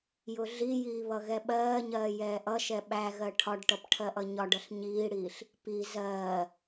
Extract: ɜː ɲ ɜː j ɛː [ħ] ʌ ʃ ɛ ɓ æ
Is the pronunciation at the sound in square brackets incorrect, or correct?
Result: incorrect